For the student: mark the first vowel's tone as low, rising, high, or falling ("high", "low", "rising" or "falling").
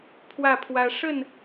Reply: falling